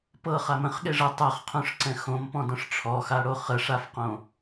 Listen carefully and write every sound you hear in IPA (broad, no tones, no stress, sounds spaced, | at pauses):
p ɤ χ a m ə̃ χ ɠ e ʐ ɤ tˤ a χ qʰ õ ʂ ǀ ɛ̃ x õ m p ɔ̃ d ɔ̃ ʂ ʈ͡ʂʰ ɔ x a ɽ o χ ə ʂ a f q õ